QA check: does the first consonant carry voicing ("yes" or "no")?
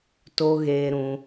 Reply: no